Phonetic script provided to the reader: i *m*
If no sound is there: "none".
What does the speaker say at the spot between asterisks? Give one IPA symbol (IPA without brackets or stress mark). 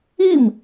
m